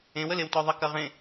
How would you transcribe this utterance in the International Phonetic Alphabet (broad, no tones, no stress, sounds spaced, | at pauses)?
ẽ w ə l e w t ɔ ðˤ ɐ k ɐ ʁ ẽ